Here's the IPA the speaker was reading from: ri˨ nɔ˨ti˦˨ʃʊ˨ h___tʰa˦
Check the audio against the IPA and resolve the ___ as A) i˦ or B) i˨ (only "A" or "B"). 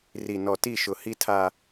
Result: A